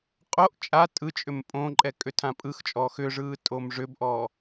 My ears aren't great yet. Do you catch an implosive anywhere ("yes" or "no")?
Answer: no